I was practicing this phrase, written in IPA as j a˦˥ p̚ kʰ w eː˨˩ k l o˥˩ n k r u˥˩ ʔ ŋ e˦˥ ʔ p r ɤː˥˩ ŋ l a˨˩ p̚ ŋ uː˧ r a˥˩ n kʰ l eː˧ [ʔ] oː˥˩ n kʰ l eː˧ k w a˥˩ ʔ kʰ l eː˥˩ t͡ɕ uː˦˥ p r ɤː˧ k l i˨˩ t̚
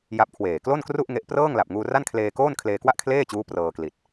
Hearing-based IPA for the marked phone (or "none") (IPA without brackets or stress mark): k